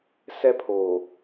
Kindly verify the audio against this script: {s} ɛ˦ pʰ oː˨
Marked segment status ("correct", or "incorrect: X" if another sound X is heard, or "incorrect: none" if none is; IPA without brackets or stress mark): correct